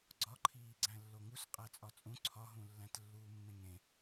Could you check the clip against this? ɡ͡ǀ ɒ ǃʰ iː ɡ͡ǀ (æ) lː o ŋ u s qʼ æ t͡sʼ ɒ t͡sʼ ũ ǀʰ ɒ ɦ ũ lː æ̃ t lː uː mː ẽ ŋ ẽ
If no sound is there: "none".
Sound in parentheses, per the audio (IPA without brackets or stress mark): æ̃